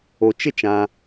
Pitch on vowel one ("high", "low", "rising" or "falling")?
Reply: low